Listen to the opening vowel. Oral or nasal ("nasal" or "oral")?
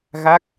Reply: oral